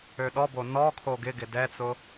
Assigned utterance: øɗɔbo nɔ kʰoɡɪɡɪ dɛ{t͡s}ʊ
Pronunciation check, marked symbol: correct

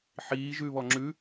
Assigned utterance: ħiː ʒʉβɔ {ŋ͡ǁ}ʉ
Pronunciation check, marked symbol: correct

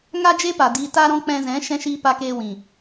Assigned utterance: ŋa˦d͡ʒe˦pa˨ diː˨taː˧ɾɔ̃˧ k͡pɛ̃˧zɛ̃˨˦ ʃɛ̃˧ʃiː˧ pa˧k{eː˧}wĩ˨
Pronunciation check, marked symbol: correct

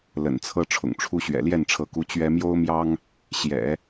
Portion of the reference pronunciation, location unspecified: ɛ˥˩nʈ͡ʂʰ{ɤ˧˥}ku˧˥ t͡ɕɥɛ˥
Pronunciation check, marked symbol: correct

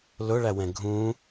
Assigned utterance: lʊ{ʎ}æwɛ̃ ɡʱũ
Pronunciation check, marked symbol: incorrect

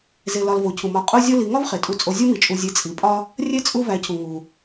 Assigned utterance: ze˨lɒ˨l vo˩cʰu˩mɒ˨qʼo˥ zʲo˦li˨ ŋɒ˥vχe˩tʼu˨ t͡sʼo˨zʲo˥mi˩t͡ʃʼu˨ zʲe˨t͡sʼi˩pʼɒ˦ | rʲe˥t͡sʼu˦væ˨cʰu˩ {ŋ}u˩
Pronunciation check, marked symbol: correct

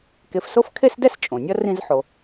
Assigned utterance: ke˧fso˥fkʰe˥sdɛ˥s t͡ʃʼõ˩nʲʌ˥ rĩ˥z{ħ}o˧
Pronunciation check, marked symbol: correct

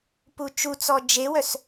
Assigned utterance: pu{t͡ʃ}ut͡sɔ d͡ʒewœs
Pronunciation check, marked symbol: correct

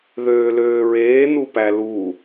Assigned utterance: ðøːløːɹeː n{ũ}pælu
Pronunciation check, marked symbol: incorrect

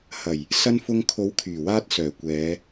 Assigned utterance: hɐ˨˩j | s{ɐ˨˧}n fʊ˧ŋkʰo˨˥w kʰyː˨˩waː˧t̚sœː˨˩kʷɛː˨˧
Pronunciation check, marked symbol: incorrect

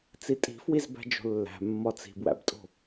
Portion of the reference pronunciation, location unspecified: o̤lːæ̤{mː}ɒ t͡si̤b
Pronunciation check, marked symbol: correct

